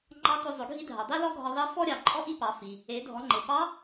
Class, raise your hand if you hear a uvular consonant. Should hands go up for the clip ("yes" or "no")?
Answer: no